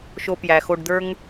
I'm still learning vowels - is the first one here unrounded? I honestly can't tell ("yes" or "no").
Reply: no